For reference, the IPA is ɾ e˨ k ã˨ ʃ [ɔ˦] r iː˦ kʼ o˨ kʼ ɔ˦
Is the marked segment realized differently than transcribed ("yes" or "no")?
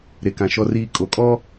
no